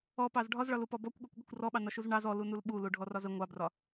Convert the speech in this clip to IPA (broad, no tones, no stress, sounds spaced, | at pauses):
ɔ p ɑ z ɖʱ ɒ z ɭ ɒ l u p ɔ b ɔ kʷ ɠ ɔ kʷ ɠ ə kʷ r ɔ ɓ ɑ n ɒ ʃ u z ɳ ɑ z ɔ l u n u l ɓ u l u ɖʱ ɔ r ɒ z ə ŋʷ ɑ b r ɒ